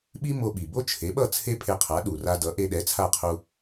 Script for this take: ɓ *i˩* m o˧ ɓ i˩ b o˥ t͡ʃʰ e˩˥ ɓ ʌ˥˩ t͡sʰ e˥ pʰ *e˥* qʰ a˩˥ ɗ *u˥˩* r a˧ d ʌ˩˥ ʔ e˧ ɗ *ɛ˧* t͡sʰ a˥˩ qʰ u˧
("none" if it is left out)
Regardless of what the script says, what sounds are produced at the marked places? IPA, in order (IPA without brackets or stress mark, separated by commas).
i˥, e˧, u˩, ɛ˩˥